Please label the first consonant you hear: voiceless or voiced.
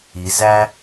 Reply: voiced